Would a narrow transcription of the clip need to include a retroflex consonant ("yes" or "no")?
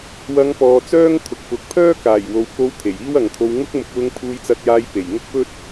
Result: no